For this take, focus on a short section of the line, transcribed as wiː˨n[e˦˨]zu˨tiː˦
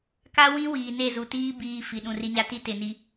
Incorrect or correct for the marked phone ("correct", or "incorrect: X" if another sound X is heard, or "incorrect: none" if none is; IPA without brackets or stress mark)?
correct